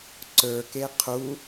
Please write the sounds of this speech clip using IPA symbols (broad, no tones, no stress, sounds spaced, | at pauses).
ǀ ə˞ k e qʰ u